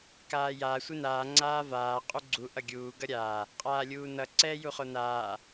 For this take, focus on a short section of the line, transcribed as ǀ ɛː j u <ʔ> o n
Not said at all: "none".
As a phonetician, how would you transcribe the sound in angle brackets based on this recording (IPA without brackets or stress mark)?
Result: χ